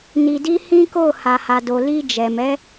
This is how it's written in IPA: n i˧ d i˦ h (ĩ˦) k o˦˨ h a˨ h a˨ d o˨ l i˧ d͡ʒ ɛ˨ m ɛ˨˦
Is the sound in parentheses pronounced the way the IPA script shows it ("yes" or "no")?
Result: yes